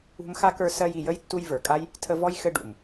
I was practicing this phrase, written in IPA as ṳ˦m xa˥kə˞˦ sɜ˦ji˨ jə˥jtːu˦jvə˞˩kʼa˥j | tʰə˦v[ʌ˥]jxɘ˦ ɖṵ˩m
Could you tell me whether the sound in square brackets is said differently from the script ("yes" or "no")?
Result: yes